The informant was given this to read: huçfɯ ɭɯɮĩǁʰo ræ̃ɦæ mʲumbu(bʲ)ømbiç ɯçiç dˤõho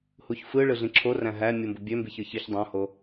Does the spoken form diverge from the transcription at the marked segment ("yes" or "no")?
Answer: no